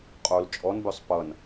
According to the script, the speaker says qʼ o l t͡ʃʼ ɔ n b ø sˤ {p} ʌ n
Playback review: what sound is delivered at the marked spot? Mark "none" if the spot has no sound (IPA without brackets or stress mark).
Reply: p